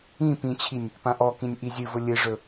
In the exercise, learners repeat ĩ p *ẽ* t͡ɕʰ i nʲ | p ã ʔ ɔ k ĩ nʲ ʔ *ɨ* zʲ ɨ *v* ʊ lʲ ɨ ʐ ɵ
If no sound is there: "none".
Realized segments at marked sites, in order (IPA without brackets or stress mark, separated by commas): ĩ, i, v